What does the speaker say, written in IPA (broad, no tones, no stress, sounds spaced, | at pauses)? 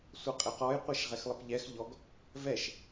sʷ ʌ qʼ ɛ q ɔ j qʷ ɛ ʃ ʁ ɛ x lˠ ə p ʎ ɛ x ʎ ɔ ɡ | v ɛ ʃ